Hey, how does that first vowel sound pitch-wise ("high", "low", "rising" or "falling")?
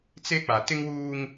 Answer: high